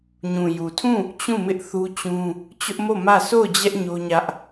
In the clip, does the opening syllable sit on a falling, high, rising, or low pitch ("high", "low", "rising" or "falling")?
low